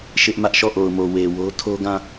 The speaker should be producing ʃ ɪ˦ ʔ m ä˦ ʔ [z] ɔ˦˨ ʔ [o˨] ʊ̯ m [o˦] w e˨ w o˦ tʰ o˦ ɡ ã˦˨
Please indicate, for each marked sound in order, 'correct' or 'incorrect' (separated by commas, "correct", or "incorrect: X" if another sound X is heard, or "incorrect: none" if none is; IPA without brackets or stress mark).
incorrect: ʃ, correct, incorrect: o˨